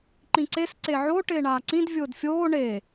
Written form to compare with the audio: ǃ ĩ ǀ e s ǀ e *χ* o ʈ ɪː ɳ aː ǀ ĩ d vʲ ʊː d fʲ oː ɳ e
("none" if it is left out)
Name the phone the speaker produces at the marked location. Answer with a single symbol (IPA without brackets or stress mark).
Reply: ʕ